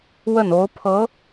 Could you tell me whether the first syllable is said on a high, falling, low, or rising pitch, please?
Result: falling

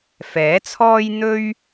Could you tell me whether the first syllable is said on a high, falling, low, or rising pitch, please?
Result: rising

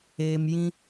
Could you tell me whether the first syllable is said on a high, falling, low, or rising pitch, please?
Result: low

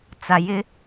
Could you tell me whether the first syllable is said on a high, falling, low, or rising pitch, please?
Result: low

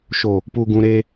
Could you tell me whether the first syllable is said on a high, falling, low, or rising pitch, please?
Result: low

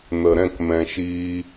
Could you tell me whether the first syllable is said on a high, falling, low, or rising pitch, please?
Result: low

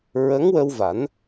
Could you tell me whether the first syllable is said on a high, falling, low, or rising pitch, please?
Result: rising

